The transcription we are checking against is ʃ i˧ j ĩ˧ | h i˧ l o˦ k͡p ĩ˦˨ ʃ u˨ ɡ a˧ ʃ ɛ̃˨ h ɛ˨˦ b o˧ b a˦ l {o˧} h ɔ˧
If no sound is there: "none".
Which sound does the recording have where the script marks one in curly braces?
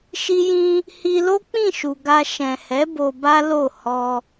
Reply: o˦˨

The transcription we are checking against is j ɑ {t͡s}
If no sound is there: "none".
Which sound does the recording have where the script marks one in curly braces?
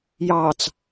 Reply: t͡s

